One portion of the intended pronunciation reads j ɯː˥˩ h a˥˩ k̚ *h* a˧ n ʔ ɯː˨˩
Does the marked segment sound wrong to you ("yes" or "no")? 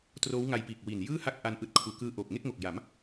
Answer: yes